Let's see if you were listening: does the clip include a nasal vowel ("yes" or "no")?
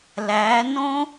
yes